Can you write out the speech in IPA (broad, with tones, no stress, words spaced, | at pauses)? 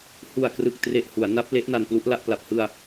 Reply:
hu˨˩a̯ krɯ˨˩k̚tre˨˩ʔ hu˩˦a̯na˦˥p̚le˦˥ʔ na˧nplu˦˥ʔla˥˩ʔ pla˨˩p̚hɯ˧a̯